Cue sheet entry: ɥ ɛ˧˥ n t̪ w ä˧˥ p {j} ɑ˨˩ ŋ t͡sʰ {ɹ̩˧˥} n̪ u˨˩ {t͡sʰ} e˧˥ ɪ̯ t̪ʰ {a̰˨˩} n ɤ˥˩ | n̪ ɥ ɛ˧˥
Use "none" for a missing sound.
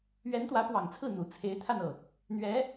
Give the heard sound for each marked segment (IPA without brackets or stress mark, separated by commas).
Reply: w, ɹ̩˥˩, t͡sʰ, a˥˧